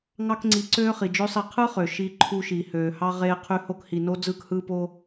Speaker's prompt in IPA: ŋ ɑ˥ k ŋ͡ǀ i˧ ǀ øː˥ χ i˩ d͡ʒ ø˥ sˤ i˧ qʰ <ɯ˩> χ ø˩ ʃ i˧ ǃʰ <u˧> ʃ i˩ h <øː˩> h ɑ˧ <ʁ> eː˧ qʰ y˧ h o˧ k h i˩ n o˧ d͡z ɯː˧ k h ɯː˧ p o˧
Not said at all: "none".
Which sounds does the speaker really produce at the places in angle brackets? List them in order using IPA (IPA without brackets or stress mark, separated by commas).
ɯ˥, u˧, øː˩, ʁ